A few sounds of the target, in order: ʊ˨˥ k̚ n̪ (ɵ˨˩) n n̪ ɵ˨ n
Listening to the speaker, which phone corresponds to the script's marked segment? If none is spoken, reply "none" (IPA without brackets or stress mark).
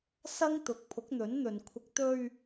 ɵ˨˥